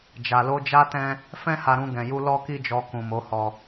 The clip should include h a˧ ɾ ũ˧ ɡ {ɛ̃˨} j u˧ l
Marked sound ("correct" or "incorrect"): correct